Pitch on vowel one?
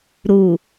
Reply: low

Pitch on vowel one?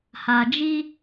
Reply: low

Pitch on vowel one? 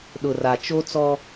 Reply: low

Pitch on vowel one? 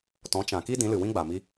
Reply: rising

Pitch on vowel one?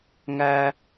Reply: high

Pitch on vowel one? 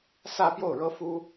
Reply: falling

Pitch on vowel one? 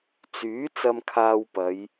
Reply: rising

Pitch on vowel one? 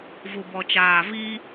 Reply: low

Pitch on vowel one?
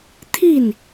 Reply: falling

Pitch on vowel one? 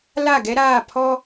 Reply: falling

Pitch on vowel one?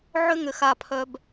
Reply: high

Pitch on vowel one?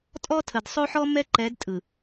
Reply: high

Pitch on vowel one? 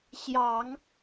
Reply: low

